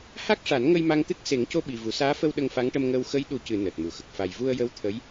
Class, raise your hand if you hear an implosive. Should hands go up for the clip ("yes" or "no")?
yes